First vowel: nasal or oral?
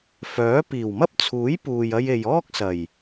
oral